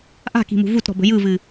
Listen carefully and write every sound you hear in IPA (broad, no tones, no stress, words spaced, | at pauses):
ʔa̤ki̤mṳ vutɾɔ̤bə̤ jɯvɨ